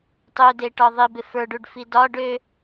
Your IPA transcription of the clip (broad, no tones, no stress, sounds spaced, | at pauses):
tˤ ø d e ʈ ɒ ðˤ i b ɪ f ə˞ ɖ u ɖ f i d ɒ ɖ ø